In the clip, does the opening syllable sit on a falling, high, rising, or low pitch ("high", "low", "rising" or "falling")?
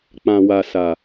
low